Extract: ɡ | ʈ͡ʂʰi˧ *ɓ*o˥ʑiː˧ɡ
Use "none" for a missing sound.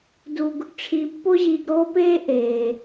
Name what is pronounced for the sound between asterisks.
pː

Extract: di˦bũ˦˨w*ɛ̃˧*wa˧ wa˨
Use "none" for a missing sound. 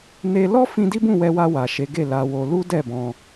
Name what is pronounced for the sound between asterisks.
ɛ˧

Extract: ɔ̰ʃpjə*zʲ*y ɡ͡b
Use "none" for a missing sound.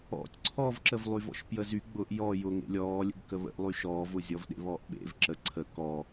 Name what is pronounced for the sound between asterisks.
z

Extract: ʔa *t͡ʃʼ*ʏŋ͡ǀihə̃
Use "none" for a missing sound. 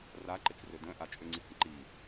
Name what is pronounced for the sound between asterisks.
t͡ʃʼ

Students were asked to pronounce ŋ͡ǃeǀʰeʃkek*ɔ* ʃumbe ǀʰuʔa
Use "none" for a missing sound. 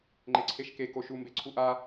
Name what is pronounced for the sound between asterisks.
o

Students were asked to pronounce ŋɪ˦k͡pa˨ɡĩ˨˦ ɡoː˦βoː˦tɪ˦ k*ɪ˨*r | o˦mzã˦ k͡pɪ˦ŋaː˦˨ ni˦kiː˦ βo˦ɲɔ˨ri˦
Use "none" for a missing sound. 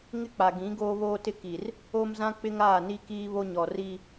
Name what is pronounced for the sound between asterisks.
i˨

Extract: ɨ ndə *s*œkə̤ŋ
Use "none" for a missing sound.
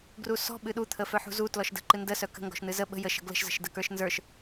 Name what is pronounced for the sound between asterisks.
s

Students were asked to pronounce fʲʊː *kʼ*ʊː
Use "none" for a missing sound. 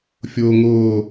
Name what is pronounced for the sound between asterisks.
ŋ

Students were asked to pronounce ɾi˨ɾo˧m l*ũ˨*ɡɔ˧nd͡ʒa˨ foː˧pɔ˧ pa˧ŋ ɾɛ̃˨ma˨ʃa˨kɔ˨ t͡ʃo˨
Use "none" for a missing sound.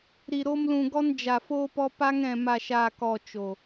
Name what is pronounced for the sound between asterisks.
ũ˨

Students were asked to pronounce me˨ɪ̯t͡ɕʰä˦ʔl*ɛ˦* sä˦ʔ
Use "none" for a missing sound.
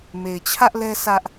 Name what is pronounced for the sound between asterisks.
ɛ˦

